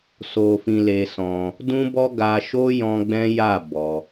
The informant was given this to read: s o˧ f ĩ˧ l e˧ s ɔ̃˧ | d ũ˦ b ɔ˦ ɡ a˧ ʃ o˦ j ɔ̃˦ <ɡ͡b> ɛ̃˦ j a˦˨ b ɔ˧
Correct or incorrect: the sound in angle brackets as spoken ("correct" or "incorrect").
correct